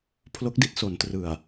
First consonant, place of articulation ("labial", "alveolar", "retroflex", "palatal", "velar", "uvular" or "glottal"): labial